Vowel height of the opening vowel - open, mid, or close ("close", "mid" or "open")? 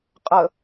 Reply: mid